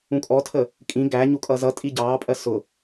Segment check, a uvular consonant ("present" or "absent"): absent